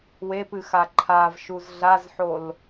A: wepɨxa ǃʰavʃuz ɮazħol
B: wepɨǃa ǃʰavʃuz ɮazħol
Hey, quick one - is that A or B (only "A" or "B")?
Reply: A